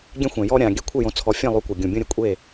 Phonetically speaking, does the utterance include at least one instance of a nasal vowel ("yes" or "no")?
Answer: yes